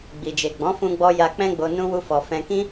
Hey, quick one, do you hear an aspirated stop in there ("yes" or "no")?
no